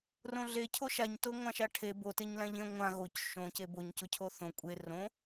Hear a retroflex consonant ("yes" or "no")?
yes